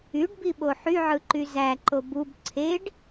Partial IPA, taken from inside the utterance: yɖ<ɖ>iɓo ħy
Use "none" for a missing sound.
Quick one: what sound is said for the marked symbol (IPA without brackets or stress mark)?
b